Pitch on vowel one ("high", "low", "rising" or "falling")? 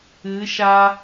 rising